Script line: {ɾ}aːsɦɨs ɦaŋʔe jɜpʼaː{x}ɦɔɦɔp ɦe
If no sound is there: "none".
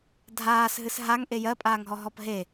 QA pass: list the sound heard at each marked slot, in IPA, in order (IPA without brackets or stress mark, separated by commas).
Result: dʱ, ŋ